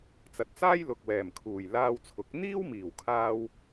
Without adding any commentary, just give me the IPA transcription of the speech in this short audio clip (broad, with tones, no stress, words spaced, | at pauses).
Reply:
t͡sɐ˨t̚t͡saː˥j lʊ˨k̚wɛː˨˩mkʰuː˨˩j laː˧wt͡sʰʊ˨˥k̚ n̪iː˥wmiː˨˩w kʰaː˥w